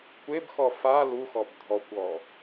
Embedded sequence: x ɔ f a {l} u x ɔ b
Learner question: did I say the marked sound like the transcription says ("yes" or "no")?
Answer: yes